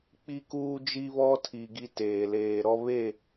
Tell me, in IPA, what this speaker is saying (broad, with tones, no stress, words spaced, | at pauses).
k͡pi˦kuː˦d͡ʒi˦βɔ˦ tʰi˨ ɡi˦teː˨ leː˨ɾɔ˦ βe˦˨